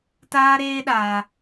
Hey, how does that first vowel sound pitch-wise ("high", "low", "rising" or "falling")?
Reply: high